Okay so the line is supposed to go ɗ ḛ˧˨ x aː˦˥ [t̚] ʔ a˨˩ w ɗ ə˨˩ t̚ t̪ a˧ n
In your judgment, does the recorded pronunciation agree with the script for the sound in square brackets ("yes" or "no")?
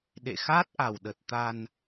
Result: yes